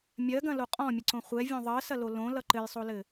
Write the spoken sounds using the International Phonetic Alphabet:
mʲɜɡɐ̃lo qʼɔ̃mʲɘǀõ χʷɛvʲõ ðˤɜsɐlo lõlʌ ǃɘjsˤolɘ

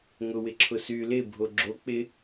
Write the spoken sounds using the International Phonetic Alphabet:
ŋʊwɪǁʰʊ sy lɪbʱo ɡ͡ǁo k͡pɪ

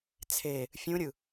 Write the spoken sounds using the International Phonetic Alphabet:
t͡sʰe | fʲũɾʲɯ

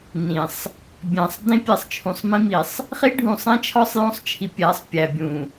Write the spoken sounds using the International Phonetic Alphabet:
nĩ˨sˤ | bʲæ̃˨sˤ dĩ˦pʲe˨sˤ t͡ʃʰũ˨sˤmĩ˦mi˨sˤ | χi˦ɖʱũ˨sˤẽ˦t͡ʃʰɒ˦sˤ jõ˦sˤt͡ʃʰi˨ pʲæ˨˦sˤ pʲæ˨bʲũ˨

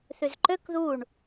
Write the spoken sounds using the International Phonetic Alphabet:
θyzǃøk ðuɳ

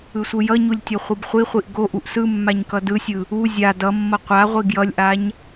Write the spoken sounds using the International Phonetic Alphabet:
ɯsʷɯjʌɲulʲ tʲoχʷɯbχʷiχʷiʔ ɡoʔuʔ sɯmːaɲ kʌdɯsʲɯ | u zʲa dʌmːʌ qʷaʁʷi ɡjʌlʲʔaɲ

